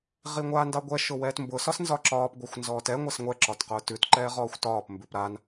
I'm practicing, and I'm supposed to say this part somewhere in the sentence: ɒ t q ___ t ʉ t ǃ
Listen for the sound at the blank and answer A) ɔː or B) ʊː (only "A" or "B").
B